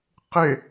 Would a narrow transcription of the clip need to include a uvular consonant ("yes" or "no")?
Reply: yes